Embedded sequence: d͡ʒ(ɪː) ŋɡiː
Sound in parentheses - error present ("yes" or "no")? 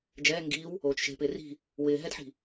yes